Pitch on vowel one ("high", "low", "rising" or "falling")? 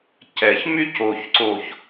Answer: low